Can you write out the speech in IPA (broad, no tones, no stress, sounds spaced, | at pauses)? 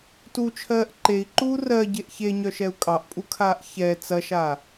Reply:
t u t͡ʃʰ ɜː ʔ ǃ e i̯ ǃ uː r ɜ ɟ e ʔ ç e ɲ œ ʃ ɛ u̯ kʼ ɑ ʔ pʼ u kʰ aː ʔ ç ɛ t͡s ɐ ʃ a